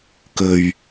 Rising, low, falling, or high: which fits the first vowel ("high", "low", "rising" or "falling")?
low